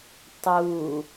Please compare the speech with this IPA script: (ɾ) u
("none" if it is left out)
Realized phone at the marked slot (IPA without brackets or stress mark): tˤ